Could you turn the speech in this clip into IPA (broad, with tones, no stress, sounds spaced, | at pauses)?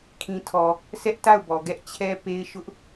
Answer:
kʰ ĩ˨ tʰ ɔ˨ | s ɛ˦ ʔ t a˦˨ ʊ̯ b ɔ˨ ɡ ɛ˦ ʔ t͡ɕʰ ɛ˦ p e˦ ɪ̯ ʃ ʊ˦ ʔ